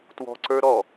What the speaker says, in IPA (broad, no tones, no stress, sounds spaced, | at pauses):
t w ɔ̤ ǀ ə˞ ɾ ɔ